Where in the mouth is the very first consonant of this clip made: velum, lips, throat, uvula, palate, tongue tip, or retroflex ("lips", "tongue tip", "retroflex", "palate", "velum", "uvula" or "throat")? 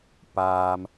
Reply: lips